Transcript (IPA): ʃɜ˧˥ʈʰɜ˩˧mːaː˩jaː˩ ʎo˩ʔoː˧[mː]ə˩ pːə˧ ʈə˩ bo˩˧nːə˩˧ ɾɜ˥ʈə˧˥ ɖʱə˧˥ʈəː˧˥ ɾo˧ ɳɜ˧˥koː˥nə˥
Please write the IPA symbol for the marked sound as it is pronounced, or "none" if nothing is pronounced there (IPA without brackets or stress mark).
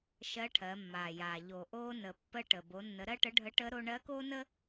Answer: n